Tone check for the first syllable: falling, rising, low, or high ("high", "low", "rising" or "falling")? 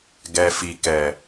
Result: low